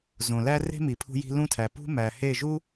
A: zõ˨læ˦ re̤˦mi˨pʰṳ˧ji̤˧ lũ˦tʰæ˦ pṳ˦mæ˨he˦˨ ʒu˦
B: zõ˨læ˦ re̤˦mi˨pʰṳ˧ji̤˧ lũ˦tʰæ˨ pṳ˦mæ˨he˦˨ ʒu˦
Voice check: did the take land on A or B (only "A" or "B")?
B